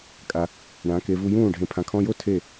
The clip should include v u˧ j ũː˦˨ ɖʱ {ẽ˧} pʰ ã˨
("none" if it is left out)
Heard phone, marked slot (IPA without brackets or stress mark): ẽ˧